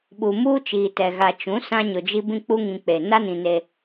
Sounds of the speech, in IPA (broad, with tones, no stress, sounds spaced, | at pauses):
ɓ u˨ m uː˦ t͡ʃ iː˨ t ɛ˨ ɣ a˨ t͡ʃ ũ˨˦ s ã˦ ɲ ʊ˨ d͡ʒ i˦ b ĩ˦ k͡p u˦ ŋ ĩ˨ k͡p e˨ n a˦ n ĩ˨ n e˦